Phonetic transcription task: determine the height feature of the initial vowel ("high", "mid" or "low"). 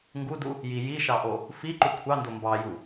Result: high